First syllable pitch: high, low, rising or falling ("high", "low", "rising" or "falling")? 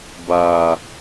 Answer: low